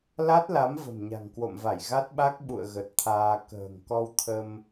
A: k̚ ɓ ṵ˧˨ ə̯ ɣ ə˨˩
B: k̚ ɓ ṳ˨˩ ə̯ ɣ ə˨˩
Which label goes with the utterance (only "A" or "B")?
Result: A